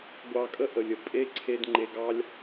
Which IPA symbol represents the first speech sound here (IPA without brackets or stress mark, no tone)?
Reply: ɡʷ